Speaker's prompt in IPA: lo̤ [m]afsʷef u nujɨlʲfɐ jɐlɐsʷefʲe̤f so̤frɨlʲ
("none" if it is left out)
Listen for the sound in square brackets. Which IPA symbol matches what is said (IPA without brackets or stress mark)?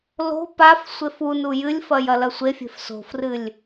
p